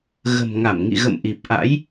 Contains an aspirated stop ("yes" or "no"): no